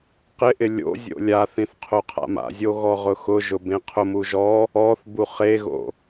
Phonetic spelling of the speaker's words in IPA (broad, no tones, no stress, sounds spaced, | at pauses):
q ɪ ʔ ɪ lʲ o̰ zʲ o̰ lʲ a θ ĩ θ qʰ o qʰ a̰ m a̰ zʲ o ɣ ɔ ʁ ʊ x ʊ ʒ ʊ b ẽ qʰ ʊ m u ʒ ɔ | ɔ θ b u χ e ɣ o̰